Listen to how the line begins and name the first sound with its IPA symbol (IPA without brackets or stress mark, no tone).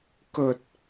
k